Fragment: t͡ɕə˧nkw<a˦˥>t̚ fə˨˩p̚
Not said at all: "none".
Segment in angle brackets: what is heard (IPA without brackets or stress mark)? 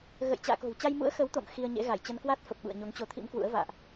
a˦˥